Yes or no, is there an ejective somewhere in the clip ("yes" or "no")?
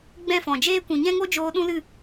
no